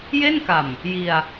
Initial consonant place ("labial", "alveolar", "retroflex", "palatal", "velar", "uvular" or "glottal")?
palatal